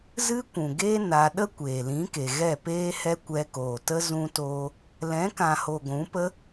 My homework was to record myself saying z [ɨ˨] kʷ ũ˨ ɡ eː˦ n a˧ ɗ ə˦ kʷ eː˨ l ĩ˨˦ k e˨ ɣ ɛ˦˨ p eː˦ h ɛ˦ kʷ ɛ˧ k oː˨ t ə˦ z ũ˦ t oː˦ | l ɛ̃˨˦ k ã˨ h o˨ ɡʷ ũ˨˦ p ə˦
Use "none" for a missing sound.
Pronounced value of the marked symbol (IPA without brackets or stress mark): ɨ˦